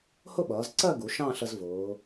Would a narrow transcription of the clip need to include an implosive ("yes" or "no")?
yes